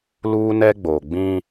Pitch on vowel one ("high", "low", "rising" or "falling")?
high